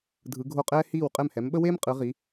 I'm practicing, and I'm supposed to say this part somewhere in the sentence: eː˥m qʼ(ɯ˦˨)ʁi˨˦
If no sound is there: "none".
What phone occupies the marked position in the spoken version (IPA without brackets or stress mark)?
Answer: ɯ˨˦